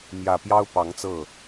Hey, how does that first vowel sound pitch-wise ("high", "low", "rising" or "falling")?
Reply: low